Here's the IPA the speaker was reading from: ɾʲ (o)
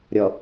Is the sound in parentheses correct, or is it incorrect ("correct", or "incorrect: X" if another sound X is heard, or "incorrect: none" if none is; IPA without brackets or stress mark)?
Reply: incorrect: ɔ